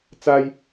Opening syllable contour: high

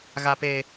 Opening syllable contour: low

